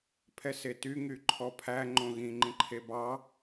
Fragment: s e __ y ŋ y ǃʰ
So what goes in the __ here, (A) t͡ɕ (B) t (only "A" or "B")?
B